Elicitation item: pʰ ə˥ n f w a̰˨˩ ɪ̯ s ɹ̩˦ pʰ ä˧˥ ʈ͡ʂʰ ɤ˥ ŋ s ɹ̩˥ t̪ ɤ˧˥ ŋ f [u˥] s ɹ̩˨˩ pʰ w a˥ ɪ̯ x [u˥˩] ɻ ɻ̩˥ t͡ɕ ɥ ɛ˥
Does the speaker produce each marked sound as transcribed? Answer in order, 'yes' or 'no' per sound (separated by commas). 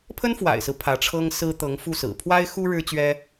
no, no